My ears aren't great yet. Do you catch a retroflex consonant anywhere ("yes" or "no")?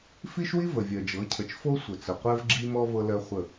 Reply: no